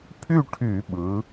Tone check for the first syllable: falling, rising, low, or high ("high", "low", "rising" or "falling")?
falling